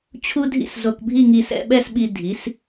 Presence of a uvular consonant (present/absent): absent